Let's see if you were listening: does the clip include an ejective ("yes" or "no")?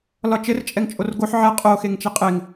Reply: yes